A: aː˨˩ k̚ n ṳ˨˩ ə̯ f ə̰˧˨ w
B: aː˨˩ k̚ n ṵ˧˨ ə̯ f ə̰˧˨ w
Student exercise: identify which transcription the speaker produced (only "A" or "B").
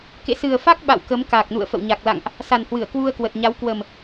B